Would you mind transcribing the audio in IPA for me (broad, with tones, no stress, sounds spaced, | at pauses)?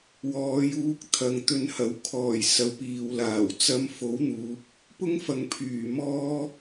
w ɔː˨˧ j uː˧ k̚ t̪ʰ ɐ˨ ŋ t̪ ɵ˧ n h ɐ˨˧ w kʰ ɔː˨˩ j s ɐ˨˧ w p iː˨ w l aː˨˩ w t͡s ɐ˧ m f o˨˥ w n̪ uː˨˥ p̚ | p ʊ˥ ŋ f ɐ˨ ŋ pʰ yː˨˩ m ɔː˥